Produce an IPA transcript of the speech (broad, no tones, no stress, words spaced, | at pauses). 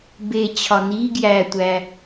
be t͡ɕʰɒni ɡjætʷæ